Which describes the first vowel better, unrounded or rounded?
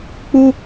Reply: rounded